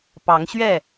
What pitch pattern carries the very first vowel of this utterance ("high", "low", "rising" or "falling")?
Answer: rising